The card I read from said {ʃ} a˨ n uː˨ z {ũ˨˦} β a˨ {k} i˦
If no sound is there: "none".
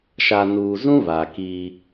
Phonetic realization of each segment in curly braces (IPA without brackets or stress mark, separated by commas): ʃ, ũ˦, k